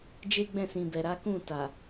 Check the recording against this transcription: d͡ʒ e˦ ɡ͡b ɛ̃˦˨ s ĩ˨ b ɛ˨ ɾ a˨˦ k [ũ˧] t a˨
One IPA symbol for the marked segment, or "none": ũ˦˨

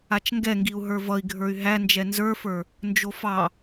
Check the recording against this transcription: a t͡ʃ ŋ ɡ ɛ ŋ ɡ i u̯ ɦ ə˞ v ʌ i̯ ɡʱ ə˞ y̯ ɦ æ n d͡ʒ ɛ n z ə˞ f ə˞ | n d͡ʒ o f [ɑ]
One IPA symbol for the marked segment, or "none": ɑ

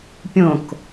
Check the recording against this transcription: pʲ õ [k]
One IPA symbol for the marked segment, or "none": k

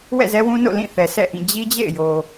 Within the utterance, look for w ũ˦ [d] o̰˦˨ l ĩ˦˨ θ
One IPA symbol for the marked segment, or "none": n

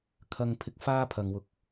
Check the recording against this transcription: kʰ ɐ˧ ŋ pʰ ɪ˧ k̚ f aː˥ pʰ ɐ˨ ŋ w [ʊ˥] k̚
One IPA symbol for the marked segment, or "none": ʊ˧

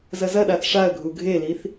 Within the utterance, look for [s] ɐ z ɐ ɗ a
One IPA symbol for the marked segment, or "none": z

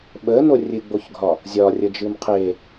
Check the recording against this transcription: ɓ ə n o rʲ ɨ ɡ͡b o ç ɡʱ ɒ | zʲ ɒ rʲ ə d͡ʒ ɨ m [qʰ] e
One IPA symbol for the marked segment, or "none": qʰ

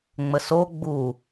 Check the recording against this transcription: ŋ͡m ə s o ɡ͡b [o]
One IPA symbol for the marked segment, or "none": u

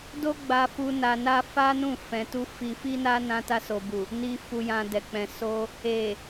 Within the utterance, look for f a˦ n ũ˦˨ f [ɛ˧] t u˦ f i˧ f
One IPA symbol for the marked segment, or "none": ɛ̃˧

